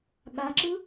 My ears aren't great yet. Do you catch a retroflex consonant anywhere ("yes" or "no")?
no